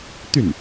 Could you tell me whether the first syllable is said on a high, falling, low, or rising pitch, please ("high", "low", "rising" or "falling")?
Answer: falling